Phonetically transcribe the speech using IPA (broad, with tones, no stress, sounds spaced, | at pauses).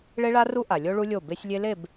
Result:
ɭ e˦ ɭ a˦ r u˦ ʔ a˨ lʲ o˦ ɭ u˦ lʲ o˦˨ b e˦ sʲ lʲ e˦ l e˦˨ b